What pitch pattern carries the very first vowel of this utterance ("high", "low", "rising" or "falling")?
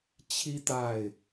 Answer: high